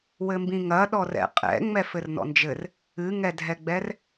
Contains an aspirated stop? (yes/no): no